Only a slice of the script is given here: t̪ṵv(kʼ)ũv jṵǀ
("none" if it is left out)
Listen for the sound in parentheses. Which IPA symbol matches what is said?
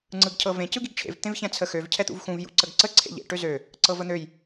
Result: x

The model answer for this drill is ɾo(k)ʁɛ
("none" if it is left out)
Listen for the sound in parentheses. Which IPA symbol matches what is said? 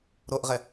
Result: ʔ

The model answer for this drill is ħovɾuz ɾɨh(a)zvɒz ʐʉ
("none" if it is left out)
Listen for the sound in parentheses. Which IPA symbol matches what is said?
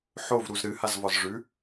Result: a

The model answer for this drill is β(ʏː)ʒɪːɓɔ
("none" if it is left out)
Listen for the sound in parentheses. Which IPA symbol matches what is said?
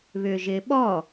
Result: ʏː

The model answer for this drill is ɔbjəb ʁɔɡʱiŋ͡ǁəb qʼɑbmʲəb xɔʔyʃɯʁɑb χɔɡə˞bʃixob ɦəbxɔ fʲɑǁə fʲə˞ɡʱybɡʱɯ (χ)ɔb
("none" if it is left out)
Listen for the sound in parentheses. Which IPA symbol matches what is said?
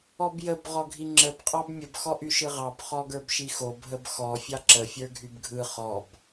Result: χ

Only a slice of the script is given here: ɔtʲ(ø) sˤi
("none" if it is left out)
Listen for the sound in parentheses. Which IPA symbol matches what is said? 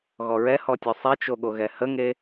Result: ø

